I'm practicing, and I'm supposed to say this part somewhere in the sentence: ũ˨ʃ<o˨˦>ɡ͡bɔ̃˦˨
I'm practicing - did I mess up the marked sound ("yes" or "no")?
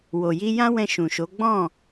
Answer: no